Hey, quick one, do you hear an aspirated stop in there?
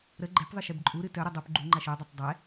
no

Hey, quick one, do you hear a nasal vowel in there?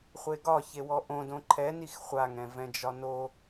yes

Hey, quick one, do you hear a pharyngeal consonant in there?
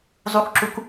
no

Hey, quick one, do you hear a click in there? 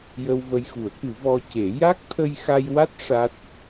no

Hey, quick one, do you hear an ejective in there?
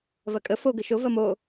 yes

